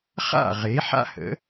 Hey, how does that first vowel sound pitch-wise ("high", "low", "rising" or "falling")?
falling